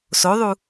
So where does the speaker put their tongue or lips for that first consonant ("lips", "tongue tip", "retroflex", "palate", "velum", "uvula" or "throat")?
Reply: tongue tip